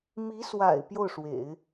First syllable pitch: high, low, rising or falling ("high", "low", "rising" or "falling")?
rising